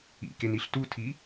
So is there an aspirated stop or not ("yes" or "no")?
yes